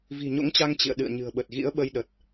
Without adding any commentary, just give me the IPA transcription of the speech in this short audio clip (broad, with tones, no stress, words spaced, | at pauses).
vi̤˨˩ɲo̰˧˥ŋt͡ɕa˧ŋ t͡ɕḭ˧˨ə̯ɗɨ̰˧˨ə̯ɲɨ̤˨˩ə̯ɓə˨˩t̚ ɣḭ˧˥ə̯ɓə˧j ɗə˨˩t̚